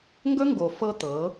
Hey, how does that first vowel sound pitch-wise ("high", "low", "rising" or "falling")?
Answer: high